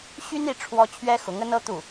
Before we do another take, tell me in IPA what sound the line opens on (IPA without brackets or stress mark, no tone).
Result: ɕ